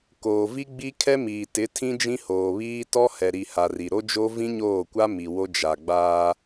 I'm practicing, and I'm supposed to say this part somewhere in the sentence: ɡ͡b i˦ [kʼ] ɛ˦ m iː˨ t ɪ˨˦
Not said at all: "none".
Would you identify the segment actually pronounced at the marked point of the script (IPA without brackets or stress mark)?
kʰ